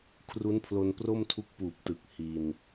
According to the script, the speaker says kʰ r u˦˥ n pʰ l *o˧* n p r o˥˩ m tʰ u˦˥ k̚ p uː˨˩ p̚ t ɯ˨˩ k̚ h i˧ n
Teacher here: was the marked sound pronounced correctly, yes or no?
yes